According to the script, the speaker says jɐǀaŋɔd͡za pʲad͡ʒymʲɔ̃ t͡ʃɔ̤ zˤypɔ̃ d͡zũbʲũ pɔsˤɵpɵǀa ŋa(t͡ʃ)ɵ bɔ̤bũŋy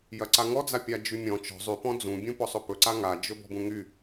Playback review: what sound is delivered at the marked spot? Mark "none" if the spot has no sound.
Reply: d͡ʒ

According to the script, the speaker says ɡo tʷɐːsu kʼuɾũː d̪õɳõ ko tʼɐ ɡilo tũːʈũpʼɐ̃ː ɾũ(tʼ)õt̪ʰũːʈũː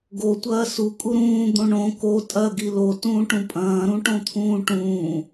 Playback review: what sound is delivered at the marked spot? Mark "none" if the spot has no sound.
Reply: ʈ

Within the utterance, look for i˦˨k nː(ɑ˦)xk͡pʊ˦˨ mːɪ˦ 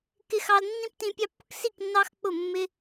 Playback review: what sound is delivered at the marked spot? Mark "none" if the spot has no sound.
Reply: ɑ˦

